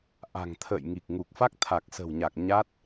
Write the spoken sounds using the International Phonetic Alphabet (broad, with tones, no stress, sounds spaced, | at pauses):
ʔ a̤˨˩ ŋ t̪ʰ ə̰ː˧˨ j ŋ i˨˩ k̚ ŋ u˨˩ k̚ f a˦˥ k̚ t̪ʰ a˨˩ k̚ s ə̤˨˩ w ɲ a˨˩ k̚ ɲ a˦˥ t̚